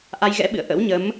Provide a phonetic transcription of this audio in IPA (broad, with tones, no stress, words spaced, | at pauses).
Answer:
ʔa˧jɣɛ̰˧˥ɓɨ̰˧˨ə̯ ʔə̰˧˥wɲə˨˦m